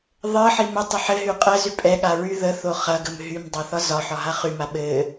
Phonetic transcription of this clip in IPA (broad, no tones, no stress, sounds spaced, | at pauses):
ðˤ ɘ ħ i m ə tˤ ə ħ ɘ ɦ y qʼ ə z y pʼ ɛ ɠ a ɹ y ð ə θ o χ ɐ ɡ ə m ɦ y m dˤ ɐ θ ɒ z ɒ ħ ɒ ɦ a χ y m a ɓ ɘ